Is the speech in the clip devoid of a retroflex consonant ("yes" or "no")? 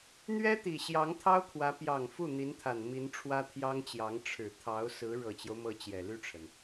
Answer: no